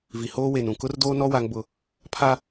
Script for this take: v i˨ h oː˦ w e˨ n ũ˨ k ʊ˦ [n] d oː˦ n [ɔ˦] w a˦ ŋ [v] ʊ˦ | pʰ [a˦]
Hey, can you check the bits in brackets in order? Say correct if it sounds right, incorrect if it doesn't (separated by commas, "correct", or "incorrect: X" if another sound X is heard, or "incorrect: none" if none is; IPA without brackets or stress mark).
incorrect: r, correct, incorrect: b, correct